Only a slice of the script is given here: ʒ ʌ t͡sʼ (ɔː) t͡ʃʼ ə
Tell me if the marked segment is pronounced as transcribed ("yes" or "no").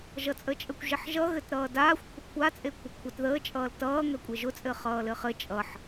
no